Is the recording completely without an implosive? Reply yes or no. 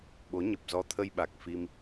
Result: no